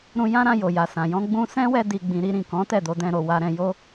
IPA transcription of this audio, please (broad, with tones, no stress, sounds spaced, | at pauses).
ɾ ũ˧ j ã˦ ɾ ã˧ j o˨ j a˨ s ã˨ j ɔ̃˧ ɡ͡b ũ˧ s ɛ̃˦ w ɛ˧ d i˨ ɡ͡b ĩ˨ ɾ i˧ ɾ ĩ˨ k ɔ̃˨˦ t ɛ˦˨ d o˧ d ɛ̃˧ ɾ o˨ w a˧ ɾ ɛ̃˧ j o˦